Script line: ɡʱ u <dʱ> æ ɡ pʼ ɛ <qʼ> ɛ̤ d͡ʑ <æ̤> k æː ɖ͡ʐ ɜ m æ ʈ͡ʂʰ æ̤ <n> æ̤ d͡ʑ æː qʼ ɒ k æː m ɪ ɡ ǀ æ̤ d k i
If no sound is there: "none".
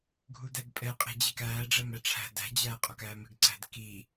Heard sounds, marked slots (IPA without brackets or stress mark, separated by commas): d, qʼ, æ, d